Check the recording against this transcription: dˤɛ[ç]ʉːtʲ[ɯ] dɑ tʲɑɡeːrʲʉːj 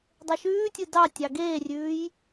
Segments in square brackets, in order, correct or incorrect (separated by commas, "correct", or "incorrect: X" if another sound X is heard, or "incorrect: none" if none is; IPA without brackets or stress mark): incorrect: ʃ, correct